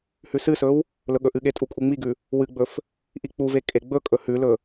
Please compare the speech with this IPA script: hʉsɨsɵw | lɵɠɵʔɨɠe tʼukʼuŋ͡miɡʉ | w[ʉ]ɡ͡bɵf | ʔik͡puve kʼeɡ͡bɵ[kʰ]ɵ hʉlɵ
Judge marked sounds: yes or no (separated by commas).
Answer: no, no